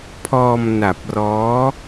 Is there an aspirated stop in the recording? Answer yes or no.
yes